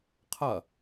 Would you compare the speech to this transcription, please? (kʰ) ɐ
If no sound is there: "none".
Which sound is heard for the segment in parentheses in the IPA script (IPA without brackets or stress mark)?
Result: qʰ